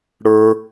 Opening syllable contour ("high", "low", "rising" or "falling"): low